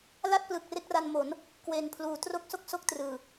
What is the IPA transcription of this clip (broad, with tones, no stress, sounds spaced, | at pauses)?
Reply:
l a˥˩ t̚ p l ɯ˨˩ k̚ r e˥˩ k̚ r a˧ n m o˩˦ n | k w e˨˩ n pʰ l uː˨˩ t r o˦˥ k̚ s o˥˩ k̚ s o˥˩ k̚ t r ɯː˨˩